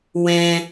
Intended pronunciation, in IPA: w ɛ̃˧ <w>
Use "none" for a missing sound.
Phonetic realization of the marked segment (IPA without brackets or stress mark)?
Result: none